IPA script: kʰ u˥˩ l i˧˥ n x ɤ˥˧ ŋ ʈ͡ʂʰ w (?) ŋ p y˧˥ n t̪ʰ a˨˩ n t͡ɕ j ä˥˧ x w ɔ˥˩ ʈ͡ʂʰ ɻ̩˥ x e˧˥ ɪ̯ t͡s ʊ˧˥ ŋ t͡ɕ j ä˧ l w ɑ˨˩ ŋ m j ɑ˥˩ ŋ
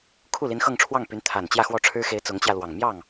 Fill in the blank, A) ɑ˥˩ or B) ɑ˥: A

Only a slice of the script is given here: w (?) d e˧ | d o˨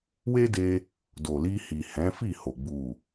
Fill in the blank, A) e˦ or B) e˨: A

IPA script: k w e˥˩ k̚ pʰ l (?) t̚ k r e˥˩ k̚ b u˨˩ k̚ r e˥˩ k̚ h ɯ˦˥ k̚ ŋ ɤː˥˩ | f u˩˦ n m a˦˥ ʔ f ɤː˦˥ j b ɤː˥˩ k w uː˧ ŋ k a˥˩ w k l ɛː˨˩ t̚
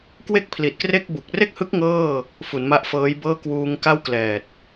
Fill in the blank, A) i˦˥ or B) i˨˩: B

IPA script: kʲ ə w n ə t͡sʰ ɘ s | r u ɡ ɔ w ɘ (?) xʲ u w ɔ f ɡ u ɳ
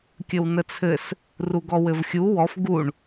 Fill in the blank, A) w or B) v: B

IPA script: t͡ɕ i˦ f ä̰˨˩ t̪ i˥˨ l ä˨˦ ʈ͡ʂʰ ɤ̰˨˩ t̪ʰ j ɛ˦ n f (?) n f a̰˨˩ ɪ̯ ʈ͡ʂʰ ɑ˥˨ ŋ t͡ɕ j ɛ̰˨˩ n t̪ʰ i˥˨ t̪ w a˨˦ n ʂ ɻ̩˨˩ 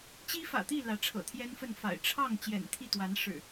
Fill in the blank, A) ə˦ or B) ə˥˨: B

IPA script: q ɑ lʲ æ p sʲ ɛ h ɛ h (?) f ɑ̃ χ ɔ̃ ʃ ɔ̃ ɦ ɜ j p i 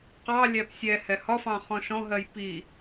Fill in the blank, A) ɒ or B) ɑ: A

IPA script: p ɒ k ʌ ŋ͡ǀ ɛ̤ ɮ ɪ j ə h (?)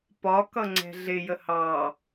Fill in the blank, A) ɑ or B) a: A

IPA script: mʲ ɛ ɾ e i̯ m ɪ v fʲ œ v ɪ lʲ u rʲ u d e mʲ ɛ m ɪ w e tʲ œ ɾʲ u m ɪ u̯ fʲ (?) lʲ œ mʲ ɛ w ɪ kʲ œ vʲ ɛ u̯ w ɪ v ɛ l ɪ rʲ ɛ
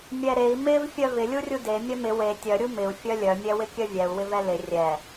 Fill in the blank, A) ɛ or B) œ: B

